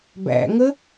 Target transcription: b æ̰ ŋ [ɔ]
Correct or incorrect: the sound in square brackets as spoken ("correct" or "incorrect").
incorrect